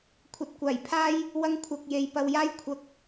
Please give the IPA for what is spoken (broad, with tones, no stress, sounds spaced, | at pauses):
kʷʰ ɐ˨ t̚ kʷ aː˨˩ j pʰ aː˥ j | w ɐ˧ ŋ kʷʰ ɐ˨ k̚ j e˨ j p ɐ˧ w j aː˥ j kʷʰ ɐ˧ k̚